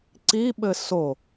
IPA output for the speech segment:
ǀ i ɓ ɘ s o

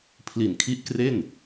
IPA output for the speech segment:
pʰ l i˨˩ n kʰ i˦˥ ʔ k r e˥˩ n

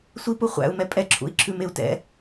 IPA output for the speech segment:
sʷ i p u χʷ æ̰ u̯ m ɛ pʼ ɛ ǁʰ ṵ i̯ ǁʰ ʉ m e u̯ t ɛ̰

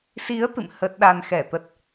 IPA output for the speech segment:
s i˨˦ ə̯ t̪ ɨ̰˧˨ m h ə˦˥ t̚ ɗ a˧ n x ɛ˧˩ t̪ ə˦˥ t̚

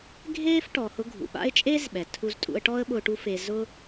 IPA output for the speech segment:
ɡʱ eː˥ f ʈ ɔ˩ h ʊ˧ ɡʱ ṵ˩ ɓ a̰˥ ɪ̯ t͡ʃʼ eː˥ z ɓ ɛ˩ tʰ u˧ z tʼ ṵ˧ ə̯ ʈ ɔ˥ ə̯ ɓ ʊː˧ ʈ u˥ f e˧ z ʊ˥

